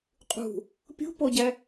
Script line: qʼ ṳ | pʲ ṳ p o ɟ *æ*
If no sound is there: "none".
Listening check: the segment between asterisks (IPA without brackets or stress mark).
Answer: æ